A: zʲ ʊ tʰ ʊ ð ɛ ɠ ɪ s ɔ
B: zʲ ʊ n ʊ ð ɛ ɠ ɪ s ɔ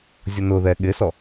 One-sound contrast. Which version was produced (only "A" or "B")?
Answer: B